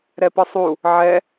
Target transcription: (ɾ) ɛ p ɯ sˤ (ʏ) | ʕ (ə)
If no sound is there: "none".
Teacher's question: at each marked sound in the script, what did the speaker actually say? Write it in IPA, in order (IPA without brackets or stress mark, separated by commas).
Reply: ɾ, u, ɛ